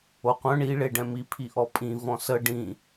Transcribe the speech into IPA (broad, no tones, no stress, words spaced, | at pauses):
oqʷœ̃ ɳi ɭeɖɛ̃mi pʰiʔɔpʼĩ vɔ̃sə ɖĩ